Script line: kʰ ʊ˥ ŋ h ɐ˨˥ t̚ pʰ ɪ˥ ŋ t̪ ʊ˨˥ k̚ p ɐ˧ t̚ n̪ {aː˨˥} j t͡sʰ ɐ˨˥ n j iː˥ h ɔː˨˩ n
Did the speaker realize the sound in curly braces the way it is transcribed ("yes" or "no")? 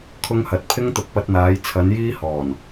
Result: yes